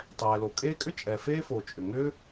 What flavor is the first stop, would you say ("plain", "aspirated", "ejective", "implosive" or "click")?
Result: plain